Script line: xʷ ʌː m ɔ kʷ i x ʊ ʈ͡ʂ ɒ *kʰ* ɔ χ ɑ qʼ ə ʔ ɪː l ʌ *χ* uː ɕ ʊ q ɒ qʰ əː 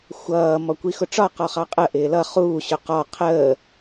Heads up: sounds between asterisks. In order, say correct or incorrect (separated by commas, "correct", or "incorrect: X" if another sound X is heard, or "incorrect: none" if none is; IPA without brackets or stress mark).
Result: incorrect: q, correct